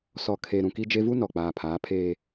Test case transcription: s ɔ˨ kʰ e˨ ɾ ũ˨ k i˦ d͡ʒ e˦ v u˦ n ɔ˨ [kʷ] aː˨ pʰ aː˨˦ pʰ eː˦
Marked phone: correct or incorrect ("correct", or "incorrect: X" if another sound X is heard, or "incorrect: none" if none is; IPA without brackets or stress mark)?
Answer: incorrect: k͡p